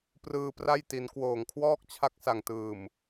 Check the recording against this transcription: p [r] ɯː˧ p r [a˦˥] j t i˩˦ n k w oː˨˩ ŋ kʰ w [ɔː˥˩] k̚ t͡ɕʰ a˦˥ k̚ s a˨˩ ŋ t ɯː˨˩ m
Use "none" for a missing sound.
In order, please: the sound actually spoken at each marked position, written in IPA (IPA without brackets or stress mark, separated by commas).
r, a˥˩, ɔː˥˩